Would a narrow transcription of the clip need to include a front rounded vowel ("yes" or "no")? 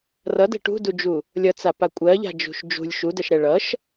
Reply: no